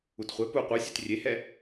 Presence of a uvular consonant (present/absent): present